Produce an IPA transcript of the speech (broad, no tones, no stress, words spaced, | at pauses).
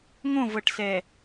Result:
ŋõvɤʈsɛ